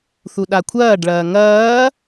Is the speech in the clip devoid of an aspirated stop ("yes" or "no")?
no